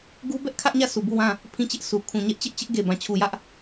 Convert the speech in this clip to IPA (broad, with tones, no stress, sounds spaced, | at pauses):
ɡ u˦ b ɛ˦ ʔ kʰ ä˦ ʔ ɲ ä˦˨ sʰ u˨ b u˦˨ w ã˦˨ | pʰ ĩ˦˨ t͡ɕ ɪ˦ ʔ s u˨ kʰ ũ˨ ɲ ɛ˦ ʔ t͡ɕ ɪ˦ ʔ t͡ɕ ɪ˦ ʔ ɡ e˨ b ã˨ t͡ɕʰ u˨ j ä˦ ʔ